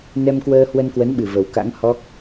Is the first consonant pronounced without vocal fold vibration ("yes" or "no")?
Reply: no